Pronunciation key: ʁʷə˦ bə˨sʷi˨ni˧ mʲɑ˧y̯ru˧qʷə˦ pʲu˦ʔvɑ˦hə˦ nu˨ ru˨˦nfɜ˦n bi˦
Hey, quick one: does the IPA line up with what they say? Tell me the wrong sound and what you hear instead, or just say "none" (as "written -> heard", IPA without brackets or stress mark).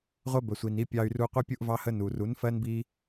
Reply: mʲ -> pʲ